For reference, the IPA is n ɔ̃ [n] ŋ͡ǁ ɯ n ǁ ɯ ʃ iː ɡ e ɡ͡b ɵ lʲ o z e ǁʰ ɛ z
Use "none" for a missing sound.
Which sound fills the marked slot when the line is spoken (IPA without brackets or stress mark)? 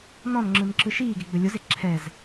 n